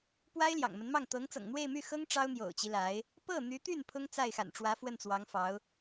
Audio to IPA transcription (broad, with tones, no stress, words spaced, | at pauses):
pwa˥ɪ̯ljɑ̰˨˩ŋmə˧˥nmɑ˥˩ŋ t̪ɤ˧˥ŋt͡sɤ̰˨˩ŋn̪we˥˧ɪ̯my˥˩ xɤ˥ŋ ʈ͡ʂɑ˥ʊ̯n̪jo̰˨˩ʊ̯t͡ɕi˦ la˧˥ɪ̯ | pɤ˥˩n̪y˧˥t̪y˥˩n pʰʊ˥ŋt͡sa˥˩ɪ̯xa̰˨˩nʈ͡ʂwä˧˥ fwə˥˩nt͡swɑ˧˥ŋfɑ˧˥ʊ̯